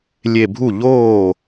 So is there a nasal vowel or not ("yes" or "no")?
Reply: no